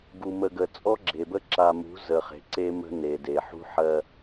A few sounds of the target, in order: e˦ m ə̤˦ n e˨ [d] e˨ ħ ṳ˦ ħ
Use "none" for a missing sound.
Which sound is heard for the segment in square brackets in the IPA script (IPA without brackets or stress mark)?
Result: d